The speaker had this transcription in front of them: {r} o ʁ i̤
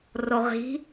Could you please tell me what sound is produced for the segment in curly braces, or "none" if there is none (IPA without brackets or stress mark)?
r